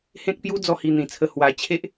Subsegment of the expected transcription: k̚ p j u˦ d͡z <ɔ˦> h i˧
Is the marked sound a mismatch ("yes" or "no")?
no